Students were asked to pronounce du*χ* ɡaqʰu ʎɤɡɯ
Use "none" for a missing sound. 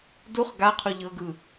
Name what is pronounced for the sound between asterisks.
χ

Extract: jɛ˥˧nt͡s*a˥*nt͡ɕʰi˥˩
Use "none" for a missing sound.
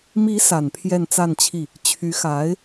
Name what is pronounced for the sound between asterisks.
a˥˧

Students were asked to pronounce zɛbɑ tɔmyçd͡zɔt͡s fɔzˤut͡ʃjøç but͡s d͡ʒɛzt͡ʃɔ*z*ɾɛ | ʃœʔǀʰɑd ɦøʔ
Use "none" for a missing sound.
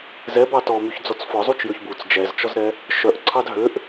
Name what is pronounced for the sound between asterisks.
z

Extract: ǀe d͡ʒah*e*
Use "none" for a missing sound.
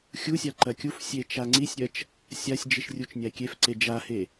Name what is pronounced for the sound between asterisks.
e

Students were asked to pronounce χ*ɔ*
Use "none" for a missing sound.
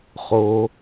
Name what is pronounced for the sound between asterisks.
o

